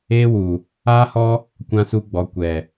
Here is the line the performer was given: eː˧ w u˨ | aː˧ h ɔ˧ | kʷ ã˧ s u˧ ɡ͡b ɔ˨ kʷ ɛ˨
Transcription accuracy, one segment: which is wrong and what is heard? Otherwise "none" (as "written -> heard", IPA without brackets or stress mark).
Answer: none